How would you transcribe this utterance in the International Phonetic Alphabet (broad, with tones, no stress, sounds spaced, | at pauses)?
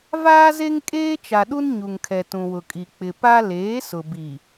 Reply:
v aː˦ z e˦ ŋ kʼ eː˦ t͡ʃ a˨ ɗ u˦ n ɲ u˨ ŋ kʰ ɛ˨ t ũ˨ w ʊ˨ kʼ i˨ k͡p ɪ˨ p a˦ l eː˨˦ s ʊ˨ b i˨